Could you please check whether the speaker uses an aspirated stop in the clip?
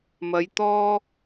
no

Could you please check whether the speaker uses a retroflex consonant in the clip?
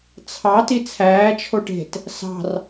yes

